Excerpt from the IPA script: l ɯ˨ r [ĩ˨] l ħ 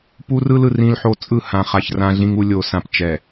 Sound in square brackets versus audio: incorrect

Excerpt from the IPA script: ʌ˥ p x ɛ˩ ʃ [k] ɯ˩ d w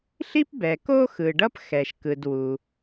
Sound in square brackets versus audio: correct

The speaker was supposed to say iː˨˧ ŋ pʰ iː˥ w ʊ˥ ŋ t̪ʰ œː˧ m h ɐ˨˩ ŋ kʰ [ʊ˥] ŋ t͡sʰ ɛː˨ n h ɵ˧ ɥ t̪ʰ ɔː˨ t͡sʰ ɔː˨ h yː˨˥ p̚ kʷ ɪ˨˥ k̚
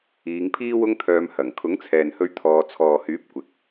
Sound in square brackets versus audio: incorrect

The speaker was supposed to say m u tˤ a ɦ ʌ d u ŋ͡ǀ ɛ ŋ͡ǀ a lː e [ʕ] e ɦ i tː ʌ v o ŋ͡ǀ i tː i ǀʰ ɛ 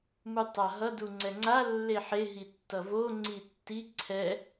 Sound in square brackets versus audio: incorrect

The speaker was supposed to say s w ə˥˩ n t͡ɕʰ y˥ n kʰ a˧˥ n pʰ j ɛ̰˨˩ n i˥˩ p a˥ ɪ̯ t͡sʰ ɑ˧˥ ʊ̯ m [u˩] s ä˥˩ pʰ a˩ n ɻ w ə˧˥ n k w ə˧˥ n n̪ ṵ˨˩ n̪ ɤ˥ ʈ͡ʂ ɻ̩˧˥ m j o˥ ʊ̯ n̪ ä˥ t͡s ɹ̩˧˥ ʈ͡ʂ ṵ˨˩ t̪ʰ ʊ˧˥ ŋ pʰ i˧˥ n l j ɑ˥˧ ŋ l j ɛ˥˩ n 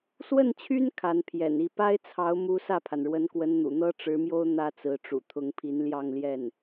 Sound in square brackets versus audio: incorrect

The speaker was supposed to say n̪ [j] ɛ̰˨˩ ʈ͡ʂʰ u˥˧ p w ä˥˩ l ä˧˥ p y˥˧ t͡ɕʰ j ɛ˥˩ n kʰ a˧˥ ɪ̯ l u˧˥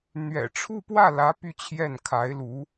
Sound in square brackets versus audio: incorrect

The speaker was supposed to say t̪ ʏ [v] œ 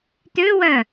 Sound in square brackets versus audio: incorrect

